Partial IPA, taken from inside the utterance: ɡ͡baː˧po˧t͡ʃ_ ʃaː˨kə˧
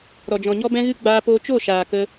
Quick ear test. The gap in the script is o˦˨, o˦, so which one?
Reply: o˦˨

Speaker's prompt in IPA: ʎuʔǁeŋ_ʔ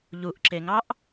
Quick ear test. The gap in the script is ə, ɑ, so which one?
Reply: ɑ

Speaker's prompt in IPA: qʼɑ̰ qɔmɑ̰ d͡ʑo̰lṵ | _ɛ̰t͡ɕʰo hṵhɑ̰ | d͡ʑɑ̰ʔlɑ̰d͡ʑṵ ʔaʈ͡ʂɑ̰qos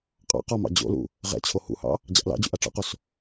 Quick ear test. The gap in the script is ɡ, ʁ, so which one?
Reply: ʁ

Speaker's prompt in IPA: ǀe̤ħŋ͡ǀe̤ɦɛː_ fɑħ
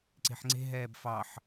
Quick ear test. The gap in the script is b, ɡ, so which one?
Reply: b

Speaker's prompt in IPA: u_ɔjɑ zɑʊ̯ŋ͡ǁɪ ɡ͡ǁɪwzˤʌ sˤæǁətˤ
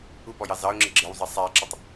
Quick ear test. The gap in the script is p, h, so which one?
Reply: p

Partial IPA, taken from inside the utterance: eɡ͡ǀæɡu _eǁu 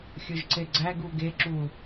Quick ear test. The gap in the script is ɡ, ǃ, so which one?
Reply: ɡ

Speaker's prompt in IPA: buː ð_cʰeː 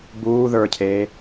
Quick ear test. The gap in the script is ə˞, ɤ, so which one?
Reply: ə˞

